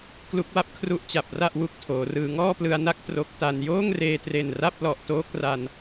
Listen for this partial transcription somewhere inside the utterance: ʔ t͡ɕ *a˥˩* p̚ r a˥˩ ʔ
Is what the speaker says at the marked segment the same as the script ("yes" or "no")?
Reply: no